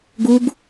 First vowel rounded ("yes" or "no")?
yes